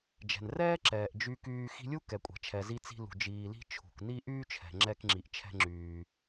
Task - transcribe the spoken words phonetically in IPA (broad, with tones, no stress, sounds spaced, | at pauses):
d͡ʒ ɛ̤˩ n r ɛː˥ ǁ ɛː˩ ʔ d͡ʒ y˧ k yː˧ x i̤˧ lʲ u˥ k ɛ˩ kʷʼ ɛ̤˩ t͡ʃʰ ɛ˩ z i˧ t͡s i̤˧ l ṳ˩ d͡ʒ iː˩ l i̤˧ t͡ʃʰ ṳ˩ k n i˥ ʔ yː˥ t͡ʃʰ ɛ̤˩ ŋ͡ǁ ɛ˧ k ŋ͡ǁ i˩ ʔ t͡ʃʰ ɛ̤˧ ŋ͡ǁ yː˩